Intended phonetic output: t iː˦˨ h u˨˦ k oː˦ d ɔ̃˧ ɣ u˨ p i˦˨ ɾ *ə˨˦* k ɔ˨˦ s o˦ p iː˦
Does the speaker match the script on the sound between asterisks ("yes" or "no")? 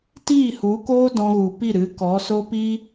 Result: no